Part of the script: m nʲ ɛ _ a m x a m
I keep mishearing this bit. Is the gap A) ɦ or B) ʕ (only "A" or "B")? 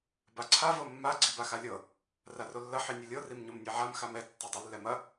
B